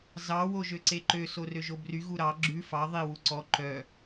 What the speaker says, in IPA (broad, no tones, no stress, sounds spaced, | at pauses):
z ɑ w o ʒ ø ǀ e ǃ ø s o r ø ʒ o b r y ɣ u ɾ ɑ ɡ͡ǁ ʉ f ɑ ðˤ i w u ǀ ɔ ǃ œ